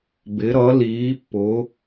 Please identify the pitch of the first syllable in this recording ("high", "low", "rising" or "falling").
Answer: rising